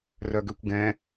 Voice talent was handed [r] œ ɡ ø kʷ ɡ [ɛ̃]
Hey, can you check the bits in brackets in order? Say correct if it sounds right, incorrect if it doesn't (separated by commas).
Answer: correct, correct